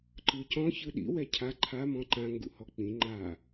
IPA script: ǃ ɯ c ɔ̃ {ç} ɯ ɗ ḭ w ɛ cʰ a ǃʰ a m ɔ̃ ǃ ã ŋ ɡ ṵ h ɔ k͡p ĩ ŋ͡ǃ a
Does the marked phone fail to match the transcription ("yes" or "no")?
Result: no